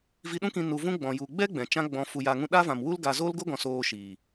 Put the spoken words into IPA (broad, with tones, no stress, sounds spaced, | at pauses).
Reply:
v i˧ ɗ ũ˦ k ĩ˧ n u˧ v ũ˦ ɡ͡b ɔ̃˨ j u˨ ɡ͡b ɛ˦ ɡ͡b ɛ̃˨ t͡ʃ ã˦ ɡ͡b ɔ̃˧ f u˨ j a˨ ŋ ũ˧ ɗ a˦ v ã˨ m w u˦ l ɡ a˧ z o˦ l ɡ o˦ ɡ ɔ̃˨ s oː˧ ʃ iː˨